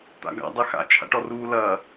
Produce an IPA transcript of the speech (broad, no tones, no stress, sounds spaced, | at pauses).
t̪ a̰ ɡ a̰ dˤ ɛ x a̰ t͡ʃʰ a̰ ʈ ɔ r uː l ɐː